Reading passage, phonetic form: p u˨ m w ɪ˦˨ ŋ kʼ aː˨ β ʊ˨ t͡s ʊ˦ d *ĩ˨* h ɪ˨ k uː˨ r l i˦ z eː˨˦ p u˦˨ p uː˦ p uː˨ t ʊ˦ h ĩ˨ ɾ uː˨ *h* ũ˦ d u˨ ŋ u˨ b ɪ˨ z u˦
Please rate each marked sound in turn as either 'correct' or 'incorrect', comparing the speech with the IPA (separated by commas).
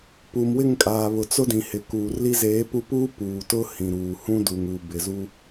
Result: correct, correct